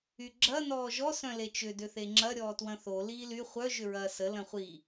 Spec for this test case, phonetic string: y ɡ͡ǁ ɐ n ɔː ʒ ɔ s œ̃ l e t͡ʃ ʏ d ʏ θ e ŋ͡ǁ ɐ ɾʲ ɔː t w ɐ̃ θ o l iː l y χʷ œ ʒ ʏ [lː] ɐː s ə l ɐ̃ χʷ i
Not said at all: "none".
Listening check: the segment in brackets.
ɹ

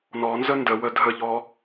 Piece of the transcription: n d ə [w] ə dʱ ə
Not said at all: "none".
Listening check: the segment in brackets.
w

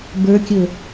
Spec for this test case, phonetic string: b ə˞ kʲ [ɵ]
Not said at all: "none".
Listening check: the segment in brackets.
ɵ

